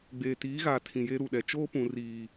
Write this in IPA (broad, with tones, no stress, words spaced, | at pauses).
ɡ͡beː˨tiː˨˦ɣaː˨ tʰĩ˨je˦ɾu˦˨ɗɛ˨ t͡ʃoː˦pũ˨ riː˨